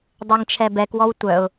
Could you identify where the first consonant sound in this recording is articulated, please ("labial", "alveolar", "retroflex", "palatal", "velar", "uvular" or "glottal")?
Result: alveolar